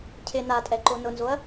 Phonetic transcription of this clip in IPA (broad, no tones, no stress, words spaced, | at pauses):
cʰɪ natʼɛǃo nʊnzoɐ̯